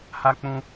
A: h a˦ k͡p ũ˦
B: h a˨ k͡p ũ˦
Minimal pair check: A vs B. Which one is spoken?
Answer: A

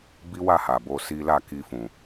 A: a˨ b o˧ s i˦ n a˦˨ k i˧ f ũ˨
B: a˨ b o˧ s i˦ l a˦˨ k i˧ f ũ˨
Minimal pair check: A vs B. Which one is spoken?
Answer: B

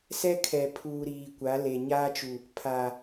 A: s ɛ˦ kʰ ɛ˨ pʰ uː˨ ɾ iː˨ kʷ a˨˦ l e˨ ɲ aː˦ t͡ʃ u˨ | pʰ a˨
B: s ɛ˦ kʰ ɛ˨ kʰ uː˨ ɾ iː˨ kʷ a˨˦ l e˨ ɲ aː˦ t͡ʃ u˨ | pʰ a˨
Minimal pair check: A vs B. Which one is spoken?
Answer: A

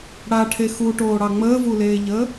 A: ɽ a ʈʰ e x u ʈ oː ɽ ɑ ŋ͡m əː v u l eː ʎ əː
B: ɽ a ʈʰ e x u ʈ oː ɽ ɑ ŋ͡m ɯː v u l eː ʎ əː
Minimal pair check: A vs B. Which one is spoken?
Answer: A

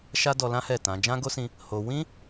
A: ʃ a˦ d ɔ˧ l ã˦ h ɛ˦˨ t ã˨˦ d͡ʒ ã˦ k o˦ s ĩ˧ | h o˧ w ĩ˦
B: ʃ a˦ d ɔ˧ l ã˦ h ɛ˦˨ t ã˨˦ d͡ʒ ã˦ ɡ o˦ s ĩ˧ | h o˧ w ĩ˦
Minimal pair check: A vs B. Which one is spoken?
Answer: B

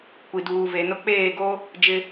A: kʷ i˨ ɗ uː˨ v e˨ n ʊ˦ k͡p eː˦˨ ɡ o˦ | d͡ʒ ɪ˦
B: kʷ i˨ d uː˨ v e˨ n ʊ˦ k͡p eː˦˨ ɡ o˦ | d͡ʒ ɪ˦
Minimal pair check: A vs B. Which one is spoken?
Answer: B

